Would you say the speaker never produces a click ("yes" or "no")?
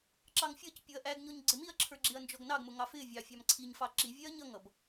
no